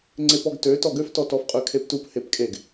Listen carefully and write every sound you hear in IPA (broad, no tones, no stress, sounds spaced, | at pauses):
ŋ͡ǀ e p ɔ ɡ t ø t ɔ ɡ ø f t ɔ t ɔ f qʼ ø kʰ e p t u p h e p kʼ e ɡ